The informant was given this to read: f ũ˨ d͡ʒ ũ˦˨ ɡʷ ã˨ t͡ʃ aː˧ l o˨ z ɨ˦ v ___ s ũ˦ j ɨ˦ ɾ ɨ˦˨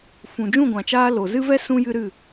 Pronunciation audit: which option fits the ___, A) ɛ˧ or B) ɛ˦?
B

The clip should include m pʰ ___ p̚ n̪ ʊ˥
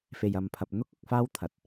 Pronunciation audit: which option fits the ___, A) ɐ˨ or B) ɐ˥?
A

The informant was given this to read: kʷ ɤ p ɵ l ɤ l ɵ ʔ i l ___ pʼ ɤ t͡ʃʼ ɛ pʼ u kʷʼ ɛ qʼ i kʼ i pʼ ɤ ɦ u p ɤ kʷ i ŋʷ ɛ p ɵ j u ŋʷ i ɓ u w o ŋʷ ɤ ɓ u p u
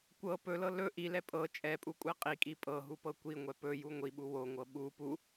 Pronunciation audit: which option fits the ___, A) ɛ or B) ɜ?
A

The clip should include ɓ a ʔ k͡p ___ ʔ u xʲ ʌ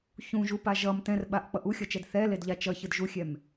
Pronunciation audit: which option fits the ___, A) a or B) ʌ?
B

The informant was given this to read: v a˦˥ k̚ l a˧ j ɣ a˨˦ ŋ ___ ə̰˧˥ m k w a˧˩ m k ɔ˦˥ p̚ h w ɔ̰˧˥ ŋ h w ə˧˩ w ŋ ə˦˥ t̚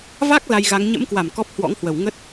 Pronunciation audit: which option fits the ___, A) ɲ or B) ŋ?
A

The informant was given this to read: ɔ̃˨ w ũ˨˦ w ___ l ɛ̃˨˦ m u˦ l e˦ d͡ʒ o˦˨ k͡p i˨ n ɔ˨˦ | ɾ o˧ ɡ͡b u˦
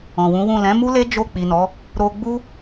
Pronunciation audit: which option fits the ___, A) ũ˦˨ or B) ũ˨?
A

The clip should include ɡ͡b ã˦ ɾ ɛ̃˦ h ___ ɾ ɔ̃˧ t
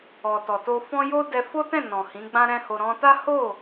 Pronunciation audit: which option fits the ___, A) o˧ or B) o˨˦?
A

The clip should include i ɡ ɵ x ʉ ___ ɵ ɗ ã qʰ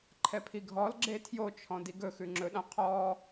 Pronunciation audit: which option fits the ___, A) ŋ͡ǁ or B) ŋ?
A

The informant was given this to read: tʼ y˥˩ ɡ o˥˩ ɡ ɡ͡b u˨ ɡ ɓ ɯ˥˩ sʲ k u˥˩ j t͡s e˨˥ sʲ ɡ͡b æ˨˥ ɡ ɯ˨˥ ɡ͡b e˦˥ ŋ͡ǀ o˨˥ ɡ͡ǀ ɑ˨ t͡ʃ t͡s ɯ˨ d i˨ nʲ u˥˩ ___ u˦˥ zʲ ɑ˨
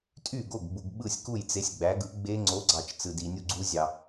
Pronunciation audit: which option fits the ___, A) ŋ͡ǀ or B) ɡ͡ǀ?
B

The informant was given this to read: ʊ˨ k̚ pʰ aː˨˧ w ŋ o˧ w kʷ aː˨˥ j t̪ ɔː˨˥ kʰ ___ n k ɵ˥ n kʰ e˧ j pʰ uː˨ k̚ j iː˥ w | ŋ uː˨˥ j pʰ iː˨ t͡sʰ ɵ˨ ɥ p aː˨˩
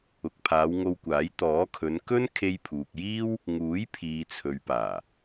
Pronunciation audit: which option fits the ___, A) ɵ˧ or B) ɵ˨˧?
B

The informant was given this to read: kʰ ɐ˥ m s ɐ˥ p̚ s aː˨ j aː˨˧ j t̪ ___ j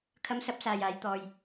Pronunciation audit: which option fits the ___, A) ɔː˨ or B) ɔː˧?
A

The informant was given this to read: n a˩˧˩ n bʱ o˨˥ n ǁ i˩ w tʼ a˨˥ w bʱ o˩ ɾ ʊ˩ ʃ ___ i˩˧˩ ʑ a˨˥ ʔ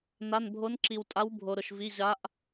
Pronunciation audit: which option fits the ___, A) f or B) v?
B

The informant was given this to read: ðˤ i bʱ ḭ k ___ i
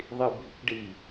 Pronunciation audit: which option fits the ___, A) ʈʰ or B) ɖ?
B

